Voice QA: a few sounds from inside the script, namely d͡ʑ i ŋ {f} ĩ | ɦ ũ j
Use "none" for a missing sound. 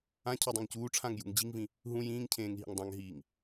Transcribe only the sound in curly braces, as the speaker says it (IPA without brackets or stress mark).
v